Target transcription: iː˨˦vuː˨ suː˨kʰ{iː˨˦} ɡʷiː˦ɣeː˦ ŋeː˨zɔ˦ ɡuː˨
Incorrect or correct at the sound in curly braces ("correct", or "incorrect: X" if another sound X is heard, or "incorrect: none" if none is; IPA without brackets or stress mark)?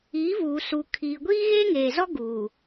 incorrect: iː˨